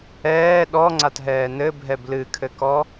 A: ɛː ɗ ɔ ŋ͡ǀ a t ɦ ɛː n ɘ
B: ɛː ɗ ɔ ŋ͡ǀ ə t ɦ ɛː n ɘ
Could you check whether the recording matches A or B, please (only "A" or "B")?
A